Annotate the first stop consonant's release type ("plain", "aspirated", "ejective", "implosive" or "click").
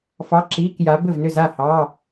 click